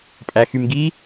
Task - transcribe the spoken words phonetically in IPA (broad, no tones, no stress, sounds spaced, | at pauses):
pʼ æ x y m ɡ i